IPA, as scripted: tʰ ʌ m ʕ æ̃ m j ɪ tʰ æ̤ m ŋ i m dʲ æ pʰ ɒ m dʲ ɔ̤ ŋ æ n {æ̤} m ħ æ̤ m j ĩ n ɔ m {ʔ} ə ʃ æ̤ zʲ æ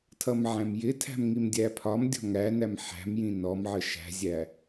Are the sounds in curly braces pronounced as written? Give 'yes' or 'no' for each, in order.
no, no

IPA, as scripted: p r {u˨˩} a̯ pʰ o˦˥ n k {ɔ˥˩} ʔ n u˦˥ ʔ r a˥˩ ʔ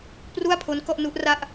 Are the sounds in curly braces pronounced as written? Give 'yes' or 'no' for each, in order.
no, yes

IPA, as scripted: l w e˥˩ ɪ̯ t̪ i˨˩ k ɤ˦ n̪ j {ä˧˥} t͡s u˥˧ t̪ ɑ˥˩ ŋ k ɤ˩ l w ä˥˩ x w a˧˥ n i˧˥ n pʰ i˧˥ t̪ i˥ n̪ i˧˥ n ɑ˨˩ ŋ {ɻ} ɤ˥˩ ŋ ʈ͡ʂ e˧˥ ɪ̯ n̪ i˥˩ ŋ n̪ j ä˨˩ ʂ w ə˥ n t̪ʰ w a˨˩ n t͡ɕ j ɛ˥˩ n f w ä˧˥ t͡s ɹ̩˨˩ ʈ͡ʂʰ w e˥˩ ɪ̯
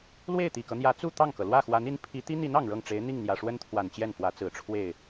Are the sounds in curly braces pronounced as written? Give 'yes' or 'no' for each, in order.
yes, yes

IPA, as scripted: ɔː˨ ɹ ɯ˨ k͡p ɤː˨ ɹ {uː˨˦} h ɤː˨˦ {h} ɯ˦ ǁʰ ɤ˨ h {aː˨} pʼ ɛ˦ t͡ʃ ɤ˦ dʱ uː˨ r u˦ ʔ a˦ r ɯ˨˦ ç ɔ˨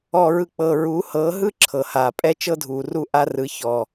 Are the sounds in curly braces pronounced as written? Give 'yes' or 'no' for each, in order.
yes, no, yes

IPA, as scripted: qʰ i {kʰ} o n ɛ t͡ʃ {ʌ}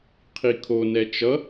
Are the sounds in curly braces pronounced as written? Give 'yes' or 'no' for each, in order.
yes, yes

